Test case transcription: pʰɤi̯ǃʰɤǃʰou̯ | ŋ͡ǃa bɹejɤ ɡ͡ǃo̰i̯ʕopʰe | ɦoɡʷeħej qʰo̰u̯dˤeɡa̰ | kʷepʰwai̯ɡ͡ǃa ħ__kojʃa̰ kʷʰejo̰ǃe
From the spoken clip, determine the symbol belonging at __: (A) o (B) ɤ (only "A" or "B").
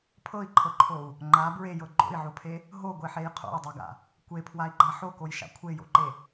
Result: A